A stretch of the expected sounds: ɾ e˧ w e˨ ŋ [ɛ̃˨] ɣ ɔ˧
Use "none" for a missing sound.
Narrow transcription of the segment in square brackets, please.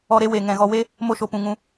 ɛ̃˨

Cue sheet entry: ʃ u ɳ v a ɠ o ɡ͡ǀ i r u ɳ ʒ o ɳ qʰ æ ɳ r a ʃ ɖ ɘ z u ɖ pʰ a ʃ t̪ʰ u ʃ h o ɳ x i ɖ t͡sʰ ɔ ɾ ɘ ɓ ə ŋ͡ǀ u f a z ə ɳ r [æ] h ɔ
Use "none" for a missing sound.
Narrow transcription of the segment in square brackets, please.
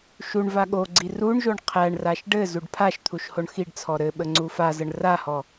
a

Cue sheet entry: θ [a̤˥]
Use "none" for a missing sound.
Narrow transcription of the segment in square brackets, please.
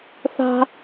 a̤˥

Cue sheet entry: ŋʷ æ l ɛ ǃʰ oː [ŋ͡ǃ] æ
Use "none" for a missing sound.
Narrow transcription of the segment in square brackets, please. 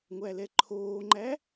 ŋ͡ǃ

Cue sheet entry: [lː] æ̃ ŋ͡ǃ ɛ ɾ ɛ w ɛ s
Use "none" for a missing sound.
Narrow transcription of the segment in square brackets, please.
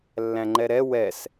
lː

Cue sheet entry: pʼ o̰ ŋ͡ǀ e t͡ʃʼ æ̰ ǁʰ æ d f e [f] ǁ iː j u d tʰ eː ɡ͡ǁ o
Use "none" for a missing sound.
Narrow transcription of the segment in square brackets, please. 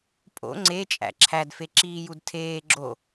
none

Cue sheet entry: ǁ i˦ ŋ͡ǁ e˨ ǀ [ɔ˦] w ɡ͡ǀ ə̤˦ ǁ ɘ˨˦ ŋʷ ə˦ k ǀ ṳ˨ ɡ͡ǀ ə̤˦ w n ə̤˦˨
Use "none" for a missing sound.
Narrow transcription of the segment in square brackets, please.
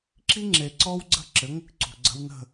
ɔ˦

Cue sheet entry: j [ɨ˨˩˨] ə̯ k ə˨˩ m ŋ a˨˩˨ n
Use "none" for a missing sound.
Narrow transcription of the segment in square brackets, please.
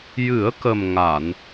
ɨ˨˩˦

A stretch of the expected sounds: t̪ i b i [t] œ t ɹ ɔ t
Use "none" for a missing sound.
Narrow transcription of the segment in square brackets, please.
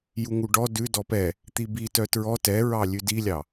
t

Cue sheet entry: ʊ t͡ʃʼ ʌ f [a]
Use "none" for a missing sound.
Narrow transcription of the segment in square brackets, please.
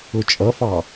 ɑ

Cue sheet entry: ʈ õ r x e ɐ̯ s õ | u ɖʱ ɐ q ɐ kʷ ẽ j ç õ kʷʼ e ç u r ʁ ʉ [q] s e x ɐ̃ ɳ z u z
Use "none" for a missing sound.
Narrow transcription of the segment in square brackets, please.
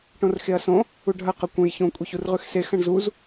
x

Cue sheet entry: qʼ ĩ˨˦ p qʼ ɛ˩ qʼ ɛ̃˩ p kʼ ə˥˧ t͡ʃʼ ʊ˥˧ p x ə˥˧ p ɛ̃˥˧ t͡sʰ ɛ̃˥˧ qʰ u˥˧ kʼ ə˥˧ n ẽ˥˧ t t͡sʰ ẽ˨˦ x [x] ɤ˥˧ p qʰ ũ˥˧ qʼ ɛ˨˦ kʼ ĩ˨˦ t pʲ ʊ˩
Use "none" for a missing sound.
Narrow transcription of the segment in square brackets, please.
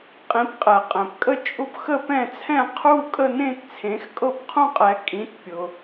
kʼ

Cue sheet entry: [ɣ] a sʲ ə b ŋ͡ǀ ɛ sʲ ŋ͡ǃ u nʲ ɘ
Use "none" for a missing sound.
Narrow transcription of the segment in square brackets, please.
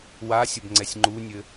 w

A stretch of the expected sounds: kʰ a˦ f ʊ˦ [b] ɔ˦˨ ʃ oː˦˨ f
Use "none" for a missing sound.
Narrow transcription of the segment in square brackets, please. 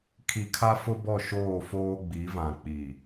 b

